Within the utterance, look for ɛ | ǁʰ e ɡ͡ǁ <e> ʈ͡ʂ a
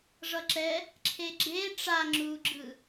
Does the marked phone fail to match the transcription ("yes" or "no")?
no